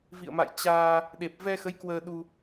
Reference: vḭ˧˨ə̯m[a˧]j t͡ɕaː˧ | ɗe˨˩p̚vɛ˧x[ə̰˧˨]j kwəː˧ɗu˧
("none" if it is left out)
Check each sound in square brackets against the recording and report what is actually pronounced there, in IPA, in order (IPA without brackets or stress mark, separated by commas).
a̰˧˨, ə˨˦